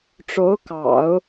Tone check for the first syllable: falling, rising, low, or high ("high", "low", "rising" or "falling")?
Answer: rising